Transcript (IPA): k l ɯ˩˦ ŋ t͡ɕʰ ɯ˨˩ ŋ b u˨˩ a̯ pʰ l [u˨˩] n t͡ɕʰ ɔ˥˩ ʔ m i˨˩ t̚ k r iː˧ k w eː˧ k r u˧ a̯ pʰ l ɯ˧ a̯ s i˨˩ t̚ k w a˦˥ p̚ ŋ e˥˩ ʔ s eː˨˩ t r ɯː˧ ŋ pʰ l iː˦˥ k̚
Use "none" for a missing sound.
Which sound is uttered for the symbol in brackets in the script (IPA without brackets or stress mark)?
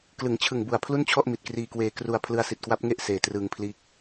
u˥˩